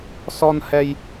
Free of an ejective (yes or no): yes